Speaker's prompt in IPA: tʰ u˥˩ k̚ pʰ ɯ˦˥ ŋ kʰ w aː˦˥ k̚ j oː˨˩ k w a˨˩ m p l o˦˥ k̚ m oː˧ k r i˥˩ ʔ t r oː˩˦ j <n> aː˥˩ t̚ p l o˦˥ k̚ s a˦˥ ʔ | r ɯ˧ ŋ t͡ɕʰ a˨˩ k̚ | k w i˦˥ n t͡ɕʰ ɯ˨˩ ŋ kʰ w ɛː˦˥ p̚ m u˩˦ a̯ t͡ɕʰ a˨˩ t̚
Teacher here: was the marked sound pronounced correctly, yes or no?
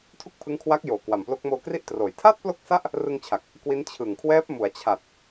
no